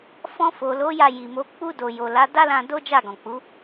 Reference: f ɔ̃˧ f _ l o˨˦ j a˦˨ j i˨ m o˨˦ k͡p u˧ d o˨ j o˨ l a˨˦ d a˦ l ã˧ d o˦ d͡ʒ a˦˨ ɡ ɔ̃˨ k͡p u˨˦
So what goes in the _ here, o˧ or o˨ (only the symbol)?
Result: o˨